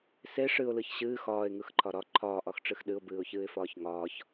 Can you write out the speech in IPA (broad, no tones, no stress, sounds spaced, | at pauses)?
s e ʂ ɨ ʊ̯ l ɯ ç ɕ ɨː x ɒː ɪ̯ ŋ ɯ x ǃʰ ɒ ɾ ɒ ǃʰ ɒː ʔ ɒ x ʈ͡ʂ ɨ x ɗ ɨ ʊ̯ b ɨː ʊ̯ ç ɨː ɪ̯ f ɒː ç ŋ ɒː ç